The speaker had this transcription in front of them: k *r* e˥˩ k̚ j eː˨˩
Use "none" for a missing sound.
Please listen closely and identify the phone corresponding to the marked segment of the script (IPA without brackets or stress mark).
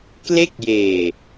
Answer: l